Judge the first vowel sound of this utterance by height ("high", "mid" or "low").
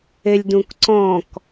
mid